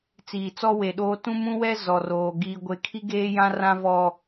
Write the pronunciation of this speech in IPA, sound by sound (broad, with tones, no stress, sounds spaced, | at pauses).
t͡s iː˨ t͡s ɔ˦ w e˨ ɗ oː˦ t ũ˦ m ũ˦ w ɛ˦ z ɔ˨ r oː˨ ɡ iː˦ ɡʷ e˦ kʰ i˦ ɡ eː˦ j ã˦ r ã˦ v ɔ˦